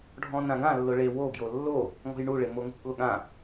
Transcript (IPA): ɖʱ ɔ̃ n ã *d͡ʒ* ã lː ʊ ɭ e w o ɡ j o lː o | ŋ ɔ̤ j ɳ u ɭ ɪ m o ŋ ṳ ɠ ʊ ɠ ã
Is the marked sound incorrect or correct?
incorrect: ɡ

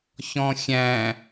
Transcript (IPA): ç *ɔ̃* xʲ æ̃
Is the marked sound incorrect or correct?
correct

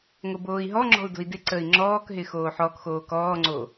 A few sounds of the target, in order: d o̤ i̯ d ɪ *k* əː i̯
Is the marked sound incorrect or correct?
incorrect: ǀ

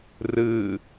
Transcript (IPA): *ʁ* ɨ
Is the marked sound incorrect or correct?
incorrect: r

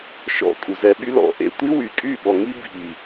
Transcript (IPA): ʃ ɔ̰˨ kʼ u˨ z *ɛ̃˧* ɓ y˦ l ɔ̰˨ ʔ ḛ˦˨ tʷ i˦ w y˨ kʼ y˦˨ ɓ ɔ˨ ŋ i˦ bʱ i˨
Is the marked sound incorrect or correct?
incorrect: ɛ˧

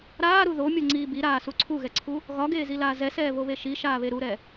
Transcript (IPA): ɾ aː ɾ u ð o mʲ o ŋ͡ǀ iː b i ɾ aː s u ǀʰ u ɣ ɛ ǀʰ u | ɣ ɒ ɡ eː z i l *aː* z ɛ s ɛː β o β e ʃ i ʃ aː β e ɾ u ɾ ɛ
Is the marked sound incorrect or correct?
correct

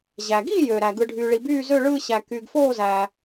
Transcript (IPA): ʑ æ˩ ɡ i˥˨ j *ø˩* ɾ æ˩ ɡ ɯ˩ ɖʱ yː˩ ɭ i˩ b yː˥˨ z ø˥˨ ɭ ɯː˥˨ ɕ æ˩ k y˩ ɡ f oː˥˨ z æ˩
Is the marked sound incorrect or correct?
correct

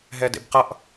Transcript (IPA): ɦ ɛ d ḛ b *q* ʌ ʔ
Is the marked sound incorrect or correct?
correct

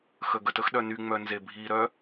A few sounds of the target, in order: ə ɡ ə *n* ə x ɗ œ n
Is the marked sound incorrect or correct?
incorrect: t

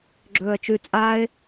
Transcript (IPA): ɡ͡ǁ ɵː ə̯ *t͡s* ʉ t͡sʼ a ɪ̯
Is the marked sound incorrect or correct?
incorrect: t͡ʃ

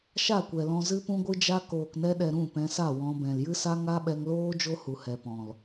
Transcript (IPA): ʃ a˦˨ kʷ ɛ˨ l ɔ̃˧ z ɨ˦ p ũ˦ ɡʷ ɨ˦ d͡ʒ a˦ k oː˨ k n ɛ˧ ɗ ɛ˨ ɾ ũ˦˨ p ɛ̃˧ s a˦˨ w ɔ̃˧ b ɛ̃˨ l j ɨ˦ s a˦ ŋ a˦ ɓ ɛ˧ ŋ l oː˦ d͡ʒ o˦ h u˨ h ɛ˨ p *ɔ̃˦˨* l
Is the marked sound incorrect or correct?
incorrect: ɔ̃˨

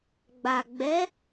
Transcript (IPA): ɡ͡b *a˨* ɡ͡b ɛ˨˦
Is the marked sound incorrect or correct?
correct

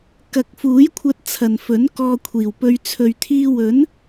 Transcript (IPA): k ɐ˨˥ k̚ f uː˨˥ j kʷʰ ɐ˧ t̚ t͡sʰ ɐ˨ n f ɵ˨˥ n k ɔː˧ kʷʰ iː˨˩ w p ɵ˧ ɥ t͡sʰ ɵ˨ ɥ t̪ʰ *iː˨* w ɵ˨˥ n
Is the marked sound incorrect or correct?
incorrect: iː˧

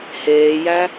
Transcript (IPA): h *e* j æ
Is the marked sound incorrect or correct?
incorrect: eː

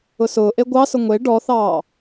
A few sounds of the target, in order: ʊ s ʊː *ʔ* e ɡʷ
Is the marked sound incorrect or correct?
correct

